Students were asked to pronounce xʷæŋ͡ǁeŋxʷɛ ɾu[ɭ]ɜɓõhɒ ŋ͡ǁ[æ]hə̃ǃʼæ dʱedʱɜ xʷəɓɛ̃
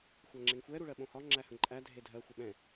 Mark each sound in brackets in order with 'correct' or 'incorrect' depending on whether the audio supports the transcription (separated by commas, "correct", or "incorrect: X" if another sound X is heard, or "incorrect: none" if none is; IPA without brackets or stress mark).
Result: correct, correct